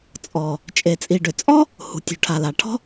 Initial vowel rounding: rounded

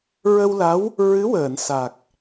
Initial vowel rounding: unrounded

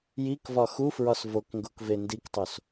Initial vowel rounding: unrounded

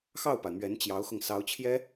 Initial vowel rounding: unrounded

